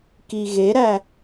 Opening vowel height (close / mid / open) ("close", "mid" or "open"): close